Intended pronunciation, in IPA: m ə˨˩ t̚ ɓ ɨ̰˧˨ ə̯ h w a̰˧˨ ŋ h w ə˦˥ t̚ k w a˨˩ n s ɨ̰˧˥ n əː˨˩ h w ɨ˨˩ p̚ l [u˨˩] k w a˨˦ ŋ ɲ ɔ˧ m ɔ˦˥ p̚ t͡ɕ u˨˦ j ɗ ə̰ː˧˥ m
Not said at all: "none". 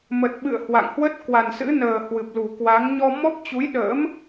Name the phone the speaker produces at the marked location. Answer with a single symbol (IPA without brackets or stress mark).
u˨˩